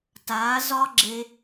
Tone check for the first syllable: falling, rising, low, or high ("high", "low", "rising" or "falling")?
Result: rising